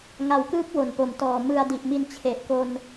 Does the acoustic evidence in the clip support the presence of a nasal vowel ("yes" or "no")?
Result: no